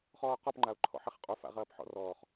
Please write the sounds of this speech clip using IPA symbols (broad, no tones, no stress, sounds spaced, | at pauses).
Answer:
χ ɔː q ɔ p ŋ͡ǃ a ʊ̯ ǃʰ ɔ̰ ħ e χ qʼ o f a̰ ʁ ɐː p ħ ɔ̰ r ɔː χ